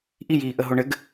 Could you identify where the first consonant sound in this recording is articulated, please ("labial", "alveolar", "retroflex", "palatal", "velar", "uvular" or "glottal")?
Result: glottal